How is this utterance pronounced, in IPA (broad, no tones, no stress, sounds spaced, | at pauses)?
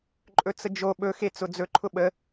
ǃʼ ɵ t͡s ə d͡ʒ o ɓ ɵ x e t͡s ʊ d͡z ɵ ǃʰ ʊ ɓ ə